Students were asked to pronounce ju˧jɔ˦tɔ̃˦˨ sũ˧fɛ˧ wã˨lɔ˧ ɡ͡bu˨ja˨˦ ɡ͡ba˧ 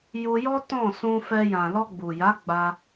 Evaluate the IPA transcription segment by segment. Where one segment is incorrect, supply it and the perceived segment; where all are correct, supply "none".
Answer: w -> j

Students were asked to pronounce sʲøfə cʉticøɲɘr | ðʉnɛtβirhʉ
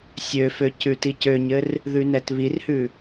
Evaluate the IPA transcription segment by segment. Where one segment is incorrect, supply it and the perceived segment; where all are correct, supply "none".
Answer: ə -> ø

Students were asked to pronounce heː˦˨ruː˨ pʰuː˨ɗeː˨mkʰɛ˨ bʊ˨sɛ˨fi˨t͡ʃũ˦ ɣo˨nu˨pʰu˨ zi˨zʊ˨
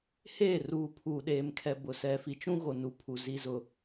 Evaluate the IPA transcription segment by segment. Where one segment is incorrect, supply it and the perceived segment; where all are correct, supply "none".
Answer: none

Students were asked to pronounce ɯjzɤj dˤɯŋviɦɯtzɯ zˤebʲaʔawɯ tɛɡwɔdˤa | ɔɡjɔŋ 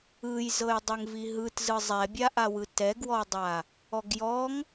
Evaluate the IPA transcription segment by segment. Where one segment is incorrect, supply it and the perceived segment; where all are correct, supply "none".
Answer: e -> ɛ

